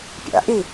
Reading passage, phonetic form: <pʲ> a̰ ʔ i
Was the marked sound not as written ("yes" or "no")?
no